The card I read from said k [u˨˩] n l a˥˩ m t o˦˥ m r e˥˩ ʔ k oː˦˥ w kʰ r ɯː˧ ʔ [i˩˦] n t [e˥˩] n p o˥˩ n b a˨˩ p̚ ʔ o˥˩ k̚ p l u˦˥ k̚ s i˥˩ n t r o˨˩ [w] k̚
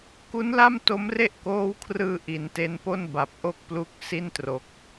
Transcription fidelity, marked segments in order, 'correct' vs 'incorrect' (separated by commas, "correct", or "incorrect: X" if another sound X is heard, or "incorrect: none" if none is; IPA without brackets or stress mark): incorrect: u˦˥, correct, incorrect: e˦˥, incorrect: none